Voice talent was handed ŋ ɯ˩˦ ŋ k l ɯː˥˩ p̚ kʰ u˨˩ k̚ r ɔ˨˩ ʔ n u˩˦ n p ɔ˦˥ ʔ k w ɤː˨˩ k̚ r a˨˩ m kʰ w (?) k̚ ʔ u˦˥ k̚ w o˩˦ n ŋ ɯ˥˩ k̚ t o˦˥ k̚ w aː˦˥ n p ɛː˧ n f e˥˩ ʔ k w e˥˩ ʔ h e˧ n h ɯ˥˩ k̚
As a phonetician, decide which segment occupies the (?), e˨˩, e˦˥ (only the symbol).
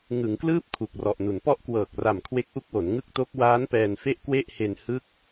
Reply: e˦˥